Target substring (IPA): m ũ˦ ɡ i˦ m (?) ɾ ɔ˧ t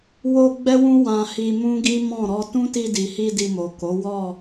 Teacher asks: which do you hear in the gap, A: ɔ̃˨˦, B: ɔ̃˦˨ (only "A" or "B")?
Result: B